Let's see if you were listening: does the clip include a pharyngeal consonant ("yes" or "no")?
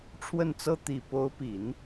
no